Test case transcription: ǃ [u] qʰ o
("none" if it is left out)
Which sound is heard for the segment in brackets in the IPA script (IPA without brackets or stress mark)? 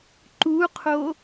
u